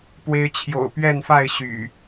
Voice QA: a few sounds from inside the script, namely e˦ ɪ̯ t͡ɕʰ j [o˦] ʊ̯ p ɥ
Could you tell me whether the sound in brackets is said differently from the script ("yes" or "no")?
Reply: yes